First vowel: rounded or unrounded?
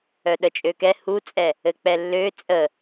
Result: rounded